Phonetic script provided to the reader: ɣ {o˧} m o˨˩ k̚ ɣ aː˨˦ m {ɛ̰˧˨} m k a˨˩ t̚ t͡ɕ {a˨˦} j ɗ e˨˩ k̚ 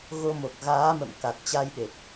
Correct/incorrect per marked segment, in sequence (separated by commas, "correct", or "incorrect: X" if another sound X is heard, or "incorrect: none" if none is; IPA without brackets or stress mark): correct, incorrect: ə̰˧˨, incorrect: a˧